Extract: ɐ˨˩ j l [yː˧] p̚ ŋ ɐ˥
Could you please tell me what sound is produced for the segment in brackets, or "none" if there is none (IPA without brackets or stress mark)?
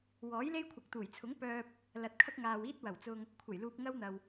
uː˧